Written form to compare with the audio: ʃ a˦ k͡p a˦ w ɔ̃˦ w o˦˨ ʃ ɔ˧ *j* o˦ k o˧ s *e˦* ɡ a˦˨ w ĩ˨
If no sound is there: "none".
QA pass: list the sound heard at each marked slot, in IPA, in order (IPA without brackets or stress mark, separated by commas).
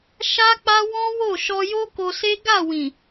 j, e˦